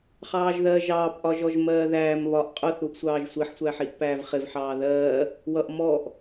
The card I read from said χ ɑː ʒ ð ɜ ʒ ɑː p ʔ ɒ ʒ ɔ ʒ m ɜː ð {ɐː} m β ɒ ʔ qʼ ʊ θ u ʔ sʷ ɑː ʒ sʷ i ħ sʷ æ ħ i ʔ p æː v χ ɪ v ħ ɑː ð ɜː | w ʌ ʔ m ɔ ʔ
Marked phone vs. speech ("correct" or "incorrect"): incorrect